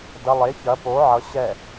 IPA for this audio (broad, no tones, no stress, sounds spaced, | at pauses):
d ɐ lˠ e ç ɐ p o ʕ ʌ ɕ ɛ